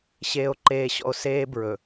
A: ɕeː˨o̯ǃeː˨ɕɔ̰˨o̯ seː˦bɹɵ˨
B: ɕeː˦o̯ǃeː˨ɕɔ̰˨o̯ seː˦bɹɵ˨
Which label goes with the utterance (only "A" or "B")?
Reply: A